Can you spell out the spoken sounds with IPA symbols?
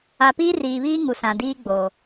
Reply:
a˨ piː˦riː˨βiː˦ ŋu˨sã˨diː˦ɡ͡bo˨

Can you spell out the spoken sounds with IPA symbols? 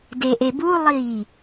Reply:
deʔebulˠiː

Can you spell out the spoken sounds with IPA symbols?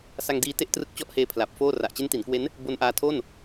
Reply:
sa˧ŋdiː˧te˥˩ʔ trɯ˦˥k̚t͡ɕɔ˦˥ʔheː˧ pʰla˨˩p̚foː˥˩ ra˨˩ʔt͡ɕe˦˥nti˩˦nkwe˦˥n | bo˧nʔaː˧tʰo˥˩n

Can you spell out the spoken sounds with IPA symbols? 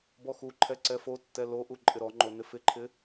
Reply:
bɔxuǃʰɛ ǀɛfotːɛ loʔu ǃʼɪɾɔŋ͡ǃo nɪfɪǃʰɪ

